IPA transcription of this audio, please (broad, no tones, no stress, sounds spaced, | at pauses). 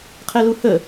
qʰ ɛ l u h ə